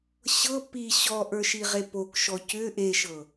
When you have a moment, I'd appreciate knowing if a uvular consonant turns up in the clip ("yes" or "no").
yes